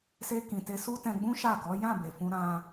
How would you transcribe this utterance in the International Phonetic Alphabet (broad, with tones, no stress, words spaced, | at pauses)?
se˧kĩ˨ te˧su˦tɛ̃˧ ɡ͡bũ˦ʃa˦˨ɡɔ˨˦ jã˦˨be˨ fũ˧ɾã˧